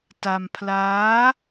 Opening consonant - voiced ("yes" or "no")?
no